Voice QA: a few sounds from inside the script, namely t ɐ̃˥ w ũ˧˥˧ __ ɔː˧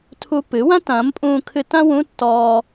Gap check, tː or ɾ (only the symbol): tː